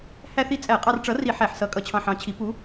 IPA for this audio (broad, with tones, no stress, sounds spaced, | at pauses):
h æ˥ θ i˥ t͡sʼ æ˧˩˧ qʼ ɑ˧ r ʈ͡ʂ ʌ˨˥ r i˧˩˧ ħ æ˧˩˧ ħ s ʌ˨˥ kʼ ʌ˧ t͡ɕʰ ɑ̃˧ ħ ɑ̃˨˥ t͡ɕʰ i˨˥ p u˨˥